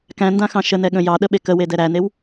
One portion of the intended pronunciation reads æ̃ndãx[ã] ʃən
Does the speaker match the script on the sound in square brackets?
no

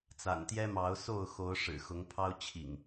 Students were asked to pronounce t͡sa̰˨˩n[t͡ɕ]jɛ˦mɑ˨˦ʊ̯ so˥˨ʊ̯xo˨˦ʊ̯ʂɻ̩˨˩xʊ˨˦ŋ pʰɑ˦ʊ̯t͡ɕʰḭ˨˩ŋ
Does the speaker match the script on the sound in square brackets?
no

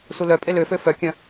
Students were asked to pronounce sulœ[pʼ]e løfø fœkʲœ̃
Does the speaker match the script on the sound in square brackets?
yes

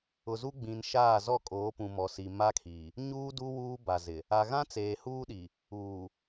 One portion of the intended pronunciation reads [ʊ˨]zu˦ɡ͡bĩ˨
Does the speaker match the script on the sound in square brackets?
yes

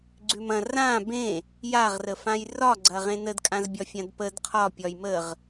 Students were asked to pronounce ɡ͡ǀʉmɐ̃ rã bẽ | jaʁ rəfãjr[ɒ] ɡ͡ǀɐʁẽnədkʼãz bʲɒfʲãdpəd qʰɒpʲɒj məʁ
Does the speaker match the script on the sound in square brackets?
yes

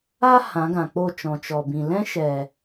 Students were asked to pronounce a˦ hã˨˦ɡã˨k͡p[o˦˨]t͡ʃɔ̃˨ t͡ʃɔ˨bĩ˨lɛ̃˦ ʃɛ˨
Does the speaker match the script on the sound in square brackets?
yes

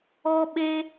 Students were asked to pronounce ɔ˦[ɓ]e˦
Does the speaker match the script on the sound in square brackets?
yes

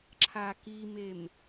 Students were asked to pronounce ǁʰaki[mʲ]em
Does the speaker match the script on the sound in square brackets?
no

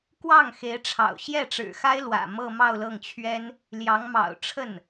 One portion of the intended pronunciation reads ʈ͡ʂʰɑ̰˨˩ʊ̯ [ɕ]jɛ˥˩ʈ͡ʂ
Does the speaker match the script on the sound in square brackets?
yes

